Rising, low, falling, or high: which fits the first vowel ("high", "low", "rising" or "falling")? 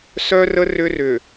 high